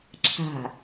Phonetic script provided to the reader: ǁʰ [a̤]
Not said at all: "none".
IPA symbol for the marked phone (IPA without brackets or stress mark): a̤